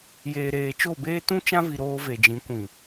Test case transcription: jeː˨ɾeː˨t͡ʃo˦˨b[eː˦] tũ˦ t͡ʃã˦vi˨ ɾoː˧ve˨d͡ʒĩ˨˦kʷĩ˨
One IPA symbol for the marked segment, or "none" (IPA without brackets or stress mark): eː˦